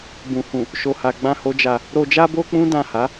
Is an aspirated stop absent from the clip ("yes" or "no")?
yes